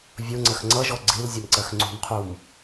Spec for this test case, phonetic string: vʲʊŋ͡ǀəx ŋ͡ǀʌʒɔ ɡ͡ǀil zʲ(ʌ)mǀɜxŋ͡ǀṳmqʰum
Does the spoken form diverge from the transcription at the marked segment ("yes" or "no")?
no